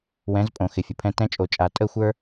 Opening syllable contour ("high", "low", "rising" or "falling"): rising